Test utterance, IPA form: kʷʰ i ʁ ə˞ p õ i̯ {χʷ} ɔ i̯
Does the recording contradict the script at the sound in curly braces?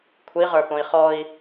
yes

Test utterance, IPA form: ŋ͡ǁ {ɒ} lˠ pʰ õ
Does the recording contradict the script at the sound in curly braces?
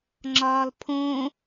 yes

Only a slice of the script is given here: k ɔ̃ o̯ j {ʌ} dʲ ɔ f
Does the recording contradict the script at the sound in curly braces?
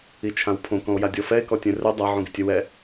yes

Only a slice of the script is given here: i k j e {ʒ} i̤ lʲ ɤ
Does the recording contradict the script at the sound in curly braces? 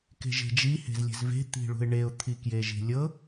no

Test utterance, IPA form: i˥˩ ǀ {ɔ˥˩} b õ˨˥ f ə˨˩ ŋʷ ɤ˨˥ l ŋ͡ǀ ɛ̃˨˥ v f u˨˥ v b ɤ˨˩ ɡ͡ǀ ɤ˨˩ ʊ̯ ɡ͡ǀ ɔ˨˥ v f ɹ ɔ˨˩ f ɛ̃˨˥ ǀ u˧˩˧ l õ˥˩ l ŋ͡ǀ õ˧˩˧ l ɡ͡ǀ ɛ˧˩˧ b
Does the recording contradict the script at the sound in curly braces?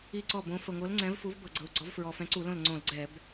no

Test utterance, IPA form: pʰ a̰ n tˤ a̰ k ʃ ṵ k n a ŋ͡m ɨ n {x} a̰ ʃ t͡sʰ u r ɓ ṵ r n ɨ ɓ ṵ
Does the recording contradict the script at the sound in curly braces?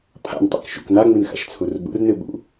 no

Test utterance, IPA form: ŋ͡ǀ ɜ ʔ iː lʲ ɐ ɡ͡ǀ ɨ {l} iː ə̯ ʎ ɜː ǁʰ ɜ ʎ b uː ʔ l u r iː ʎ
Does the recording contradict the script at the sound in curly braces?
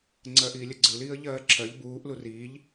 no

